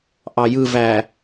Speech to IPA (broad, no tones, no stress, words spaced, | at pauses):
ʔɑjɯ væ